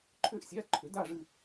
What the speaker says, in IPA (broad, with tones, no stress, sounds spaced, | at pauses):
ǃʰ ʏ˥ ʔ sʲ a˧˥˧ ǃʰ ʏ˨˥ d a˥˧ ʐ ɨ˥˧